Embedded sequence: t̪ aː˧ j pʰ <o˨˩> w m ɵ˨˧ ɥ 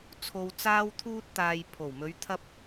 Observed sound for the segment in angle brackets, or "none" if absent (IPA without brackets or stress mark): o˨˩